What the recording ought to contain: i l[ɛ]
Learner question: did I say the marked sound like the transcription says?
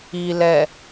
yes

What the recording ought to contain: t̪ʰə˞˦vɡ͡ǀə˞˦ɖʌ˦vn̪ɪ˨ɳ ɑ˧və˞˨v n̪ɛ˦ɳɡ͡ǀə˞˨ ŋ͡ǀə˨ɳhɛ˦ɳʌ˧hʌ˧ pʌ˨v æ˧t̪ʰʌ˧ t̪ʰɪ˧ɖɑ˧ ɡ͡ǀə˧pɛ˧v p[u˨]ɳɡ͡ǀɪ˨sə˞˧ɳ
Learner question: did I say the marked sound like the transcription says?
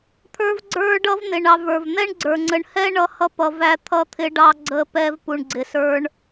yes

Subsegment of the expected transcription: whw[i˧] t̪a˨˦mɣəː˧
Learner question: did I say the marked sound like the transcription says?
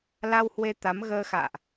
no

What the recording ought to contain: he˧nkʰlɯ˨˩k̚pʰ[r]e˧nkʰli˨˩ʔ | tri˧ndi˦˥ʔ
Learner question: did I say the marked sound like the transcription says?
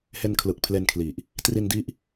no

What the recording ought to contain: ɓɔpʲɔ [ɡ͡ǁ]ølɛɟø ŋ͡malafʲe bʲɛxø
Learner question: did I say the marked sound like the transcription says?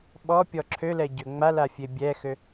no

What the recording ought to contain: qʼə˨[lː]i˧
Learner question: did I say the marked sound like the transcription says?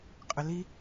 no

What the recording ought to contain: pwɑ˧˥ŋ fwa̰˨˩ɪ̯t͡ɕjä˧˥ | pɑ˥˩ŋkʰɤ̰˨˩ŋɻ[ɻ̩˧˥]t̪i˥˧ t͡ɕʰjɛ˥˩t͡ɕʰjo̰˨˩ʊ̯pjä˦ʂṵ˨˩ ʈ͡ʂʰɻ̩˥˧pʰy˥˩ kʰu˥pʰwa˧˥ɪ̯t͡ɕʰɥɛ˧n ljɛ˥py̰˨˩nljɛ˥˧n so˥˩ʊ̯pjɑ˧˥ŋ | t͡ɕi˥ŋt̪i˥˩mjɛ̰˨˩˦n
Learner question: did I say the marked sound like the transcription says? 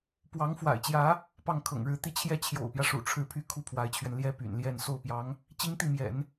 yes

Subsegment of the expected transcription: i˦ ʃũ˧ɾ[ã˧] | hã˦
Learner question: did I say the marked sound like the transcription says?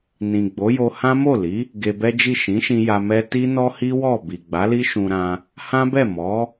yes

